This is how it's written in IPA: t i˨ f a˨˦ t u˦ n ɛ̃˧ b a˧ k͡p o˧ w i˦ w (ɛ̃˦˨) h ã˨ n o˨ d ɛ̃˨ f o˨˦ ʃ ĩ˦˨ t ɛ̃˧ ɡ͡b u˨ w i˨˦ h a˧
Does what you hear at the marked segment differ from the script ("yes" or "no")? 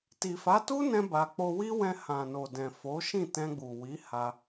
yes